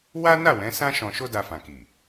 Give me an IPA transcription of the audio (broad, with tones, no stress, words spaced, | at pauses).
wa˦na˦˨wɛ̃˨˦ sã˦ʃɔ̃˧ ʃo˦da˧fã˨ki˨